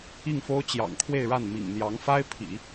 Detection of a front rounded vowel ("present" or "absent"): absent